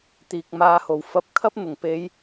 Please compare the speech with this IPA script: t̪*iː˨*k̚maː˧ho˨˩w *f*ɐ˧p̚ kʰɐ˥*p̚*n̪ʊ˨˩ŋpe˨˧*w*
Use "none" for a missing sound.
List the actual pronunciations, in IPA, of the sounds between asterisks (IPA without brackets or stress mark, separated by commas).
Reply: iː˨, f, p̚, j